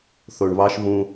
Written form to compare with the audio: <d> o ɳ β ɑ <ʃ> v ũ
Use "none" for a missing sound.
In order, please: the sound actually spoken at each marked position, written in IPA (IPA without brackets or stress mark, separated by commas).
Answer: θ, ʃ